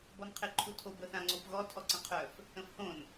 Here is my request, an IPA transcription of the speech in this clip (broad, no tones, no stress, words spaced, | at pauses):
bɔnqʰeǃʰutʰob əθãŋ͡ǀopɣɔ tʰɔǀə̃qʰœf | ə̃fhõn